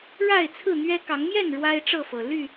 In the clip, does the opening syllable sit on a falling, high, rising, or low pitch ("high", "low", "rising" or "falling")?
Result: falling